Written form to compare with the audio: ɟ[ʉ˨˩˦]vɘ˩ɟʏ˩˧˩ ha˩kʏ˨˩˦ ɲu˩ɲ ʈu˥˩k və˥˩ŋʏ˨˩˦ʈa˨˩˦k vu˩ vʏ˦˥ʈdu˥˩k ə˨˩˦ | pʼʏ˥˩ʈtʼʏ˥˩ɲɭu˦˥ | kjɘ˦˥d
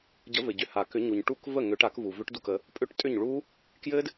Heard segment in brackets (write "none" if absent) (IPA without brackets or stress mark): ə˨˩˦